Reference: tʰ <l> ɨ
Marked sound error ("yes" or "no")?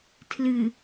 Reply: no